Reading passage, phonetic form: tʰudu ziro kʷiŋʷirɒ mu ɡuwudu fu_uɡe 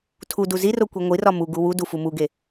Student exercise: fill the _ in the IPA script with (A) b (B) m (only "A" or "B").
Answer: B